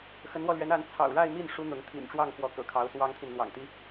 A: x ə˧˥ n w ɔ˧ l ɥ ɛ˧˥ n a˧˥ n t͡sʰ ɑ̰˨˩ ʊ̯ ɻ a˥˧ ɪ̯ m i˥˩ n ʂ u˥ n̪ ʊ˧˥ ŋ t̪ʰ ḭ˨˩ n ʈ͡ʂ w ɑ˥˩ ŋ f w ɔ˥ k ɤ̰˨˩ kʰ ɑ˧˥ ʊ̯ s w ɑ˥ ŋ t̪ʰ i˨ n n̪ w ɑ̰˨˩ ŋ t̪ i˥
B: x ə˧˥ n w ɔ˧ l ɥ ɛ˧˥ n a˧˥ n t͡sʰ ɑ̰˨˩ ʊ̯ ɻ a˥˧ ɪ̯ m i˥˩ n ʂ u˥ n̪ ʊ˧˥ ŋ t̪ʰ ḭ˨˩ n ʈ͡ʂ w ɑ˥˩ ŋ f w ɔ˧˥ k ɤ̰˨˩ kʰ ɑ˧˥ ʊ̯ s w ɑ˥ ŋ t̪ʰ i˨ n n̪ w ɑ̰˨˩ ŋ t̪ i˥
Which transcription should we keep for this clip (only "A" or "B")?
B